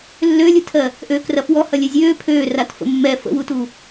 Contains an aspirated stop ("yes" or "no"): yes